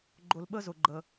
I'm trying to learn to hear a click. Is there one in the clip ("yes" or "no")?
yes